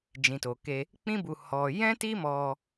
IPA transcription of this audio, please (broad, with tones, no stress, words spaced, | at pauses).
d͡ʒĩ˨to˨ke˧ | k͡pĩ˦bu˧ hɔ˧ jɛ̃˦ti˦mɔ˧